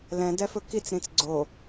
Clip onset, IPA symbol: l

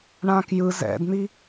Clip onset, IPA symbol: ɳ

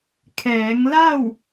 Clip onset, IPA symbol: kʰ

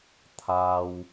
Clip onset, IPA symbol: t̪ʰ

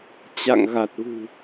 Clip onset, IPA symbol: t͡ɕ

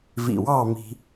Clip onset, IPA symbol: v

